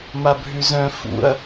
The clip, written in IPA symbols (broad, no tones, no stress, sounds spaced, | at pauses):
m a bʱ ʉ z œ̃ f ṵ ɐ̯